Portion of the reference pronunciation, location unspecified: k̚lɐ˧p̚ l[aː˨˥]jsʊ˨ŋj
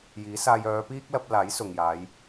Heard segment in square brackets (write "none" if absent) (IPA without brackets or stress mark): aː˨˥